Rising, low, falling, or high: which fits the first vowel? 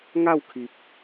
falling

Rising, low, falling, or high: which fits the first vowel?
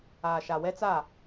low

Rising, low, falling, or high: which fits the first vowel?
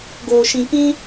low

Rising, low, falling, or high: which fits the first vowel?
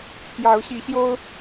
rising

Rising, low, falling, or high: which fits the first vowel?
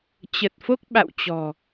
low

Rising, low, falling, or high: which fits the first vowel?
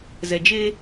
low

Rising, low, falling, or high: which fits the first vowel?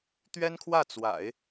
high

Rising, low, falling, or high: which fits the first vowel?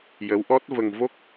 rising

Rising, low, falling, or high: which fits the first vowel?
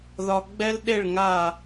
high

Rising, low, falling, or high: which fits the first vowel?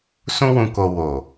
high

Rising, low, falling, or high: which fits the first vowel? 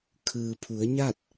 low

